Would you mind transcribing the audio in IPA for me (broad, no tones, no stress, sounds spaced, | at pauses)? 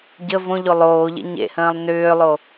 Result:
ɟ ə v õ ʎ o lˠ oː ʎ ḛ ɲ ḛ h ə̃ː lˠ n ʏː lˠ o